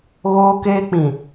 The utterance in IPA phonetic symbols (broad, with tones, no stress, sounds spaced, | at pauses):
ɣ oː˦ k eː˦ k͡p ĩ˨